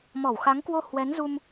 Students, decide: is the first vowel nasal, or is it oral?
oral